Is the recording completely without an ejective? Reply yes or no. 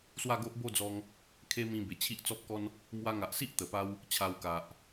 yes